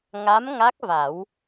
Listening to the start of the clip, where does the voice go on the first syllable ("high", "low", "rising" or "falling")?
rising